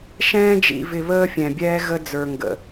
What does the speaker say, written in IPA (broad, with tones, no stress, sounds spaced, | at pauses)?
ʃ ɛ̃ː˦ d͡ʒ ḭ˨ v ɪ˨ β əː˦ fʲ ɛ̃˨ bʲ ɛː˦ ɣ ə˦ d͡z ə˞˨ ŋ ɡ ə̰˨